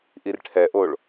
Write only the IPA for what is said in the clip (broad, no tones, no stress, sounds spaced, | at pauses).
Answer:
ʔ i r ʈʰ ɛ ʔ o ɭ